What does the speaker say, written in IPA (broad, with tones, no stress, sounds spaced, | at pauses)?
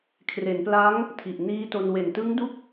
kʰ r e˩˦ n p l a˦˥ ŋ | tʰ i˨˩ ʔ n iː˦˥ t o˧ n w e˨˩ n t ɯ˦˥ ŋ d u˦˥ k̚